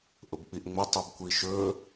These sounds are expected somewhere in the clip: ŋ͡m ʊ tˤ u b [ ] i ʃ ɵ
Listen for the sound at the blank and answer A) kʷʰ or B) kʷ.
B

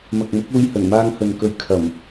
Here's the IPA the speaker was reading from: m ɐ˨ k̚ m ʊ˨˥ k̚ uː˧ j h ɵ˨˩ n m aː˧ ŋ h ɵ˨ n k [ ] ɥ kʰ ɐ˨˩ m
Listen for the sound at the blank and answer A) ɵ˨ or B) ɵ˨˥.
A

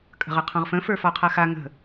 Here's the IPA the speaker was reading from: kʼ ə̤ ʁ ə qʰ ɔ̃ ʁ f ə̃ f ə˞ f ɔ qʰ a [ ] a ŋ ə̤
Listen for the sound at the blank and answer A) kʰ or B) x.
B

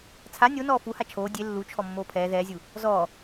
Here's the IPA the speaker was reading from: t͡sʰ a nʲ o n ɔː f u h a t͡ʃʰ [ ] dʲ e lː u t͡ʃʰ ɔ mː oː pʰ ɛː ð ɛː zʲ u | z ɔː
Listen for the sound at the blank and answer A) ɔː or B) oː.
B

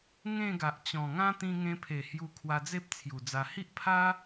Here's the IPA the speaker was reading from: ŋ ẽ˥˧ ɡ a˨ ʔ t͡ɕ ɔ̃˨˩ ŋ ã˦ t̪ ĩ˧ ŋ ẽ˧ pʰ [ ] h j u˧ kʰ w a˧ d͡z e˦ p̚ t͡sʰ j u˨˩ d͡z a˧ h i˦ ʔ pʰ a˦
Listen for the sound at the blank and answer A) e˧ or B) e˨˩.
B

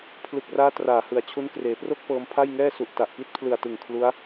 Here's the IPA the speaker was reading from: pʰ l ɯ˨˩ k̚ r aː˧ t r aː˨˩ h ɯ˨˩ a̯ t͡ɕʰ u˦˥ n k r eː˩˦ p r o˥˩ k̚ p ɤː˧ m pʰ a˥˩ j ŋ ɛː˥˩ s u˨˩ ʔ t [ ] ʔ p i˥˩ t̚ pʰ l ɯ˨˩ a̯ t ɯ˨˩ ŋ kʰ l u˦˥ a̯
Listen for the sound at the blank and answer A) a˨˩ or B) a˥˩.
A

